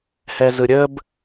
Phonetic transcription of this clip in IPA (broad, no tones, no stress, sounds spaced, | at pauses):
h ɛ z ɯ ɾʲ ə b